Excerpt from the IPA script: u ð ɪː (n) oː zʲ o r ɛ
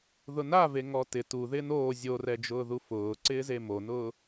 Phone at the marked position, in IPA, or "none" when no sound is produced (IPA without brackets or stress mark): n